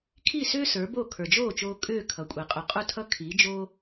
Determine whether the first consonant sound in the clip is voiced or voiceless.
voiceless